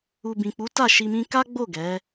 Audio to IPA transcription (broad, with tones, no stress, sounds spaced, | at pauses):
u˨ b ĩ˨ k͡p u˨˦ t a˦˨ ʃ i˧ m ĩ˦ k a˦ ɡ͡b o˦˨ ɡ ɛ˨˦